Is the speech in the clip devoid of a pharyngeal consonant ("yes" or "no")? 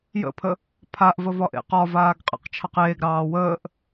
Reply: yes